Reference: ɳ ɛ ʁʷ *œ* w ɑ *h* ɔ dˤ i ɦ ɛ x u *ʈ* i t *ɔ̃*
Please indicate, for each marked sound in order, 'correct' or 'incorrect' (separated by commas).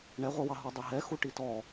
correct, incorrect, correct, incorrect